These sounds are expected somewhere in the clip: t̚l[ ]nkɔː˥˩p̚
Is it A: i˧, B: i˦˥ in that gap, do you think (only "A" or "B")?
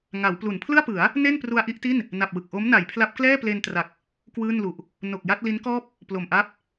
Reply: B